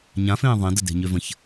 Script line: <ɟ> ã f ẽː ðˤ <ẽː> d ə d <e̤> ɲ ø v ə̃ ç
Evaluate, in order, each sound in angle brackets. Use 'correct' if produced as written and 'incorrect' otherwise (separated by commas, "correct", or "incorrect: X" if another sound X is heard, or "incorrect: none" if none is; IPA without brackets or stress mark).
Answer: incorrect: ɲ, incorrect: ẽ, correct